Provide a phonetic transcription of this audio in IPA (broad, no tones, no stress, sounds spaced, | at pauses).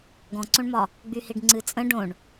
ɡ ɔ̃ ǀ õ ɳ m ɒ | ɡ͡b y h i ɖ ŋ͡ǀ ɨ t͡sʼ ə̃ ɖ õ ɳ